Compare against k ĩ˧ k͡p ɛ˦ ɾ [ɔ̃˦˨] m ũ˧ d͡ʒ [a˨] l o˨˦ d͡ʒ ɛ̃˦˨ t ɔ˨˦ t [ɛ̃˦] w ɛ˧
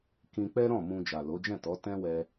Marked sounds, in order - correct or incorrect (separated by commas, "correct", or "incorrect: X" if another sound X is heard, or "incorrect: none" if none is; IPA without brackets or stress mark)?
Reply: correct, correct, correct